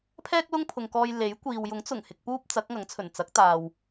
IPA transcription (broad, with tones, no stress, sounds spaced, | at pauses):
pʰ ɛː˥ k̚ l ʊ˥ ŋ pʰ ʊ˨ ŋ k ɔː˧ j l e˨˥ j kʷ iː˨ w j ʊ˨˥ ŋ t͡s ʊ˨˩ ŋ h ɪ˧ k̚ p uː˥ p̚ t͡s ɐ˨˥ k̚ ŋ ɐ˨˥ ŋ t͡sʰ ɵ˨˩ n t͡s ɐ˨˥ k̚ t̪ aː˨ w